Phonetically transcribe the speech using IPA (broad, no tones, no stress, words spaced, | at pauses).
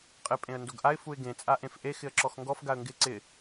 qʼɪ pʼẽə̯ndoɡʔaɪ̯ fuɪ̯ɡẽ t͡sʼaʔẽfʔe xɪə̯ǁɔxŋɡɔf ɡaə̯ŋɡɪ ǀɪ